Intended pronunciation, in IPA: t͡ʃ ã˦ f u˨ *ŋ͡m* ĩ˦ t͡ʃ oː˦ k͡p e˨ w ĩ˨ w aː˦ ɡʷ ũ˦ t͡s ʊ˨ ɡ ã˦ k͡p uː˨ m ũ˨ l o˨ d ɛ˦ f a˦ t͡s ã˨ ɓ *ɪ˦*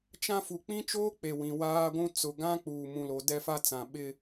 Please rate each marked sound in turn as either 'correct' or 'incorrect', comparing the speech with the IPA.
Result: incorrect, correct

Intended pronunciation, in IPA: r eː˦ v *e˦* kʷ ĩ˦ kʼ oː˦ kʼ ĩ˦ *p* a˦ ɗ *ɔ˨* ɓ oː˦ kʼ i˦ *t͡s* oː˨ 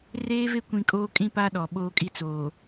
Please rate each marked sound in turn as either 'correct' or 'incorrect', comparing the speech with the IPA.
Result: correct, correct, correct, correct

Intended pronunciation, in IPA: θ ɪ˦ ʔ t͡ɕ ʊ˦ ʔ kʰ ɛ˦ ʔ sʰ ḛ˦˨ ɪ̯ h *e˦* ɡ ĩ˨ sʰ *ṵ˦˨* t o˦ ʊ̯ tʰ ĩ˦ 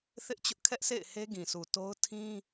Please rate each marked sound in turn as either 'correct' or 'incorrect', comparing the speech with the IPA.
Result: correct, incorrect

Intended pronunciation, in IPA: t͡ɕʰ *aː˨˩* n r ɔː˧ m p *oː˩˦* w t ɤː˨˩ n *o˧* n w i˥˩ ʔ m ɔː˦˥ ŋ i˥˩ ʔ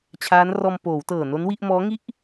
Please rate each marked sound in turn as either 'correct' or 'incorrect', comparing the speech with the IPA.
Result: incorrect, correct, incorrect

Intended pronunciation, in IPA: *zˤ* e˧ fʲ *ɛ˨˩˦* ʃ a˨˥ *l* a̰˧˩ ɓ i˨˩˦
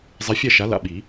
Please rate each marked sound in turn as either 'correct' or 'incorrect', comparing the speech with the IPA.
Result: correct, incorrect, correct

